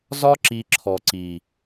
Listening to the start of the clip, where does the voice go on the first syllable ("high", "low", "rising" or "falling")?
high